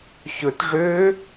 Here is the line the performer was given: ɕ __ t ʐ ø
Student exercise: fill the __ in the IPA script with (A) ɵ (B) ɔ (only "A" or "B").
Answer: A